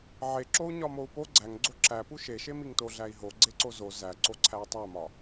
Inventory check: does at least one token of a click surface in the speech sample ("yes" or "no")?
yes